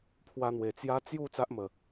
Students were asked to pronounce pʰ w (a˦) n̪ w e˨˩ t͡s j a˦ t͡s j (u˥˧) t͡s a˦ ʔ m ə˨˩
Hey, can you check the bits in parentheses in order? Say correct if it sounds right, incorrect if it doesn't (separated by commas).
incorrect, correct